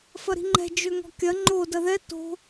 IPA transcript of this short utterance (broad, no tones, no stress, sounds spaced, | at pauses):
f ɐ ɾ i̤ ŋ͡ǃ ɛ̤ d͡ʒ ø ŋ ɔ̤ kʲ ɐ ŋ͡ǃ o d ɐ ð ɛ t o̤